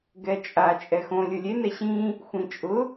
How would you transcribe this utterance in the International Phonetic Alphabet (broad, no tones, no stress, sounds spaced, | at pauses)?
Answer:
ɡ ɛ t͡ʃʼ a t͡ʃʼ ɛ x õ lʲ ʊ lʲ e n ɛ ɕ ĩ | xʷ ĩ t͡ʃʼ ʊ